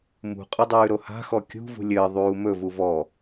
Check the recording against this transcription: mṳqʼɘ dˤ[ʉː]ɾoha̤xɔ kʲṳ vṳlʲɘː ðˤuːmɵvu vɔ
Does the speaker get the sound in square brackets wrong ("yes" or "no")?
no